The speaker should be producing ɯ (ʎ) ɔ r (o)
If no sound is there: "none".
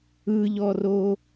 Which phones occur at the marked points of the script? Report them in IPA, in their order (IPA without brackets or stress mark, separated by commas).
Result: ʎ, o